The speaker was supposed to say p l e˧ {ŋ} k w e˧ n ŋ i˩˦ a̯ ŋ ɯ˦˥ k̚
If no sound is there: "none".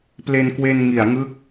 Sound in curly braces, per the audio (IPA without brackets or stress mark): n